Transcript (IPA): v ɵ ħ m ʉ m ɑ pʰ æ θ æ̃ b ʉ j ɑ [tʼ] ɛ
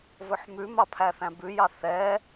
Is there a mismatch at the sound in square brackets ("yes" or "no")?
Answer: yes